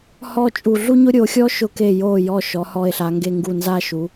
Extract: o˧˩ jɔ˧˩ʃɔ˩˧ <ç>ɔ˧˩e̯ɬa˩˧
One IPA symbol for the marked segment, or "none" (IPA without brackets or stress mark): h